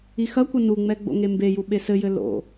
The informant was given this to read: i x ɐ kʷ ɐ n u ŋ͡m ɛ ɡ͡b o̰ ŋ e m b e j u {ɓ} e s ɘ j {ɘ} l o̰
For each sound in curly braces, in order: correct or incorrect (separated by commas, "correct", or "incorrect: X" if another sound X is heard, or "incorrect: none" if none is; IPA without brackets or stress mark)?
correct, correct